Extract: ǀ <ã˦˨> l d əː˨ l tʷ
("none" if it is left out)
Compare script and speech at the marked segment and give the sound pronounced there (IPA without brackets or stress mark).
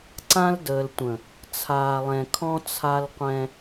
ã˦